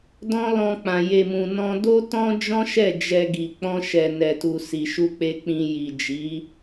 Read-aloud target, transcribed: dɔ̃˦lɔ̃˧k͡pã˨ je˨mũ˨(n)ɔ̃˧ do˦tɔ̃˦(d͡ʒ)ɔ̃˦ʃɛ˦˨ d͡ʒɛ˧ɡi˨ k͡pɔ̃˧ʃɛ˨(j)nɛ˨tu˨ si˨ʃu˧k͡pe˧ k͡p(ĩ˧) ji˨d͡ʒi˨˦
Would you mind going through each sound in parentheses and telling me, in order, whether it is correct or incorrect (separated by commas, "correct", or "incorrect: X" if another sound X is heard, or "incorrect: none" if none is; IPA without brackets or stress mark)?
correct, correct, incorrect: none, correct